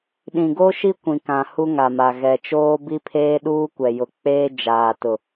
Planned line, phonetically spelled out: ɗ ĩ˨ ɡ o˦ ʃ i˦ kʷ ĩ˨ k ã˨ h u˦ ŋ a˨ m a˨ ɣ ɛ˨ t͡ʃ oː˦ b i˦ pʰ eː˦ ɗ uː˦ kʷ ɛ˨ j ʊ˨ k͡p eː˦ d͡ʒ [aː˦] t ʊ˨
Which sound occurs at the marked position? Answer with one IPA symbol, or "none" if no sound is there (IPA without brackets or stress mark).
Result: aː˨